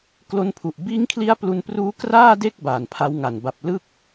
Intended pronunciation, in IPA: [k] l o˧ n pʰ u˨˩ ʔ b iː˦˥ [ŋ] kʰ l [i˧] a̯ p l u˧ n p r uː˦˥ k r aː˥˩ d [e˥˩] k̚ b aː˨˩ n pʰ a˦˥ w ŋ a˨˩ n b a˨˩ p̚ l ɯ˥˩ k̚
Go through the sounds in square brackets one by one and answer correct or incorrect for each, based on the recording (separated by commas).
correct, correct, incorrect, correct